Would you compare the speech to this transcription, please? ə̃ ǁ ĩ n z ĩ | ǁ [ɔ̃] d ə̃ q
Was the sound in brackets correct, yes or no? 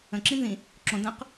no